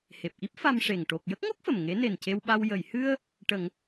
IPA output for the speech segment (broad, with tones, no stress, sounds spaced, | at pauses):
h e˨˩ p̚ ʔ i˦˥ p̚ f a˧ m ʂ e˨˩ ŋ ʈ o˨˩ k̚ j ə˦˥ k̚ ŋ o˦˥ k̚ f ə˨˩ m ŋ e˧˥ n e˨˩ n c e˧ w ɓ a˧ w j ə˨˩˨ j h ɨ˧ ə̯ | ʈ ə˨˩˦ ŋ